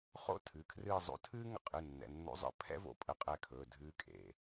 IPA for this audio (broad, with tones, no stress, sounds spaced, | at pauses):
χ o̰˥ tʰ ɨː˩˧˩ kʰ r ɨː˥˧ zˤ o̰˧˥ tʰ ɨː˥ ŋ ə̰˥˧ qʼ ɨ˩˧˩ nː ɛ̰˩˧˩ nː o̰˧˥ zˤ ə̰˧˥ pʰ ɛ̰˥ v o̰˧˥ pʼ ə˧˥ qʼ ɛ˧˥ kʰ ɵː˩˧˩ dʱ ɨː˧˥ kʼ ḛ˩˧˩